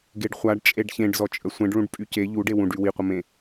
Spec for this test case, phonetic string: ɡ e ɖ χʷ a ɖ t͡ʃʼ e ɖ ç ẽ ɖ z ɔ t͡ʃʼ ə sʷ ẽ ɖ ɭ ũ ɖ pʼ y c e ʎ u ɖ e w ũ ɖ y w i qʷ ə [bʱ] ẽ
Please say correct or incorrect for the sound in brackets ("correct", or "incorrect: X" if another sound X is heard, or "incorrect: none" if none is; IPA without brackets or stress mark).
incorrect: m